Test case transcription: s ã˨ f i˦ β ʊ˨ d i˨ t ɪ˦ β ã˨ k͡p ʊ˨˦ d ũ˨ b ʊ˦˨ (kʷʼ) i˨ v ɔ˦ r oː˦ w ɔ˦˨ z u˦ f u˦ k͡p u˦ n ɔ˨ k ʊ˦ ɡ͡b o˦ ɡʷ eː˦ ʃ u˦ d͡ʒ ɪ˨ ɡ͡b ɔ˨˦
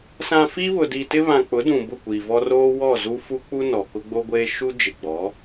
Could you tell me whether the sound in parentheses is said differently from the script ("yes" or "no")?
yes